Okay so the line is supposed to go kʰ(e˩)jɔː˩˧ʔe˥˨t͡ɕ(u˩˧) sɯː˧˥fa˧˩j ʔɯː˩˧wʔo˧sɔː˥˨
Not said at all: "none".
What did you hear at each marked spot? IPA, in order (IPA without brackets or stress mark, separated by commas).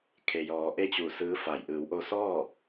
e˩, u˧˩